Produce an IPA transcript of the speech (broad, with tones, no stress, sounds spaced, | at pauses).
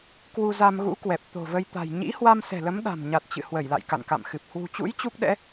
k w u˧ z a˧ m ɣ ṵ˧˥ k w ɛ˨˩ p̚ t̪ o̤˨˩ v ə˧ j t̪ a̤˨˩ j ɲ ḭ˧˥ h w a˧ m s ɛ̤˨˩ l ə˨˦ m ɗ a̤˨˩ m ɲ a˨˩ t̚ t͡ɕ ɨ̰˧˨ h w ə˧˩ j l a̰˧˨ j k a̰˧˨ n k a̰˧˨ m x ɨ˨˩ p̚ h w ṳ˨˩ t͡ɕ ṵ˧˥ j t͡ɕ u˦˥ k̚ ɗ ɛ̰˧˥